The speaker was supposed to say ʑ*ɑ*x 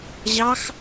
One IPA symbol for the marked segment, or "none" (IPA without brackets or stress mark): ɑ